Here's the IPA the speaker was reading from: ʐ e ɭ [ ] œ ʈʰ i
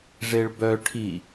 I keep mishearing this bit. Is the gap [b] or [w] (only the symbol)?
b